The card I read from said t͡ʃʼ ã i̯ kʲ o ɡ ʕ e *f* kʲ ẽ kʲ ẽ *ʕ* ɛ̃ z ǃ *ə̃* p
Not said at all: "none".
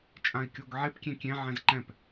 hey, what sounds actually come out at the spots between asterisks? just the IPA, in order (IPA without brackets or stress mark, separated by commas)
p, ʕ, ɛ̃